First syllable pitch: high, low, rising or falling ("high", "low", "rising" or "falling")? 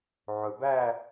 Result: low